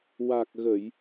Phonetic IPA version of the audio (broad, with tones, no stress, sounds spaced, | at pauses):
w a˨˩ k̚ ɣ ə˨˩˨ j